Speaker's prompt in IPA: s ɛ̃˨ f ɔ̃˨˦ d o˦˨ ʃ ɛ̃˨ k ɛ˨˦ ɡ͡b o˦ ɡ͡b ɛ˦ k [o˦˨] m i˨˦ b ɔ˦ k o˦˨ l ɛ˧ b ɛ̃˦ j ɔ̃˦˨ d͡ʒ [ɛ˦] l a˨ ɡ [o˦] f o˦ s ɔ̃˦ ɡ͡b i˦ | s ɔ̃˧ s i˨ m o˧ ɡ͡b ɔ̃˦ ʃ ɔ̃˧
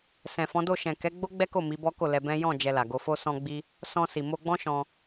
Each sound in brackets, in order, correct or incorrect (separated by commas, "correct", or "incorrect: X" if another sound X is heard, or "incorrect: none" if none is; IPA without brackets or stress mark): correct, incorrect: ɛ˧, incorrect: o˧